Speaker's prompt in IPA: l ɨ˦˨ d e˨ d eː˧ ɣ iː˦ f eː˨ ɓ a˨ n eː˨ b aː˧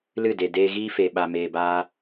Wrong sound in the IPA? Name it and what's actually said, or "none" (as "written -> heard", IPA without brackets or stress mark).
n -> m